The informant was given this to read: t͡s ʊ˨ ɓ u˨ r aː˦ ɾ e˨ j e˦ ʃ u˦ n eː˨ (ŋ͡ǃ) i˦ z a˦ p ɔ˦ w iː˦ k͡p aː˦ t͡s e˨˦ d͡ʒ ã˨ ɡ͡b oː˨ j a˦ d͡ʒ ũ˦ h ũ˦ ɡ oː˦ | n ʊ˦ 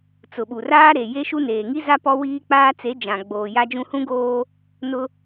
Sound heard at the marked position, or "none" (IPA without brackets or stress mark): ŋ